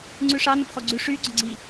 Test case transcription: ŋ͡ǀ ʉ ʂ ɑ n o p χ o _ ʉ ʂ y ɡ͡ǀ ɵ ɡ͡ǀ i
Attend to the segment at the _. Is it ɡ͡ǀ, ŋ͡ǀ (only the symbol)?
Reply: ɡ͡ǀ